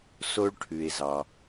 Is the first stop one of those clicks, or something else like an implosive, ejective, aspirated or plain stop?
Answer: aspirated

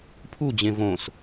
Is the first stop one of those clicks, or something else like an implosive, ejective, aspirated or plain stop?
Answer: aspirated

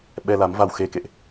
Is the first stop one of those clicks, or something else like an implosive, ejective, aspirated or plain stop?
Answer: implosive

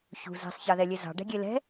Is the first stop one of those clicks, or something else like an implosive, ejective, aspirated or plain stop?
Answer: plain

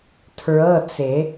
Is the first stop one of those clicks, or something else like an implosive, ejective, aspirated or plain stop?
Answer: aspirated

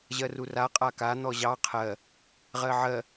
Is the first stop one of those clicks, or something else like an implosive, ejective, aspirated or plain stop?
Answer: ejective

